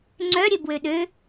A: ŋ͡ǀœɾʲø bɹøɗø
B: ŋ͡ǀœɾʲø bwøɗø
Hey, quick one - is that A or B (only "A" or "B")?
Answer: B